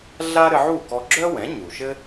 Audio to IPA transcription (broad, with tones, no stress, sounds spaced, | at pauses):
ɮ a˥ ɾ ɘ˧ ʕ u˥˩ k ɔ˧ ɡ͡ǁ œ˥ w ɛ̃˩˥ ɲ u˩ ʃ ɘ˥